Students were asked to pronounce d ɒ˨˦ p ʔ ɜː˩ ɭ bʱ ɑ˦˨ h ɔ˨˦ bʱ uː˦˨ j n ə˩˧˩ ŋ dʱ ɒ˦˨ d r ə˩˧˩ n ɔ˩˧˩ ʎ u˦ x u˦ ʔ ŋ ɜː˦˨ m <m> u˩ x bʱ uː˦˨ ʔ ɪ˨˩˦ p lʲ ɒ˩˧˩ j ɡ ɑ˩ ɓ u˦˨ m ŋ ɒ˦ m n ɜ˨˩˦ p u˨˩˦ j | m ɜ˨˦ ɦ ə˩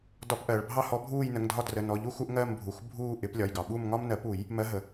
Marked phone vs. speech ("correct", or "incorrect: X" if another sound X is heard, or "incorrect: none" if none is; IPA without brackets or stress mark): incorrect: bʱ